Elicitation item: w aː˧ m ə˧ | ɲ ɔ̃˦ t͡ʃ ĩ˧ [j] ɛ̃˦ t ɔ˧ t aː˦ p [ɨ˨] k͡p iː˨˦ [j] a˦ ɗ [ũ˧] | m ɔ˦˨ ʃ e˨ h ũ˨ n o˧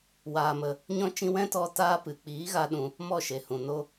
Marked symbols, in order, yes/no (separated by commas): no, yes, no, yes